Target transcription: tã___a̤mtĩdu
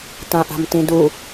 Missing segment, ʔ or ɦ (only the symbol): ʔ